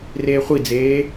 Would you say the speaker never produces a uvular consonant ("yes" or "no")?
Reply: no